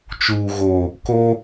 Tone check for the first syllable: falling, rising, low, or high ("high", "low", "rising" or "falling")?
low